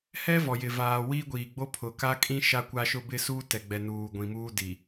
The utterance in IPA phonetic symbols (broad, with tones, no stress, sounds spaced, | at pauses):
h ɛ˦ v ɔ˨ j ɪ˨ v aː˨ w iː˦ ɡʷ iː˨ ɡ͡b o˦ pʰ ʊ˨ k a˦ kʼ ĩ˦ ʃ a˦ kʷ a˦ ʃ ʊ˦ b ɪ˦˨ s uː˦ t ɛ˨ ɡ͡b ɛ˨ n uː˨ ɡʷ ĩ˨ m uː˦ d i˨